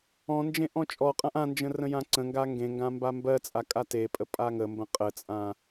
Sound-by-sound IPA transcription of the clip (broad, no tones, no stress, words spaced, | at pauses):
ɔ̃nd͡ʒẽ ʔɔ̃t͡ʃʼɔqʼãʔ ãnd͡ʒə̃ rə̃jãǀə̃ŋɡa ŋɡẽŋɡã mbambɜt͡sʼa kʼatepʼə pʼaŋəmbə̃ qʼət͡sʼã